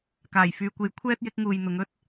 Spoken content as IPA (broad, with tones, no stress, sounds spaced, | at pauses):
k aː˨˩ j f yː˨ kʷ e˨˥ j kʷʰ ɛː˥ t̚ j ɪ˨˥ k̚ ŋ uː˨ j n̪ ʊ˨˧ ŋ ɵ˥ t̚